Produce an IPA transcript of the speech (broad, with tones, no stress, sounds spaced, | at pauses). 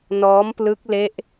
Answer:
n ɔː˦˥ m p l ɯ˦˥ k̚ l e˦˥ ʔ